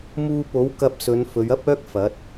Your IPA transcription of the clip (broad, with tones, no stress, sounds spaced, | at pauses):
m uː˧ p o˨˥ w k ɐ˧ p̚ s ɵ˨˧ n f ɵ˨˧ ɥ ɐ˥ p̚ œː˥ k̚ f ɐ˨˥ t̚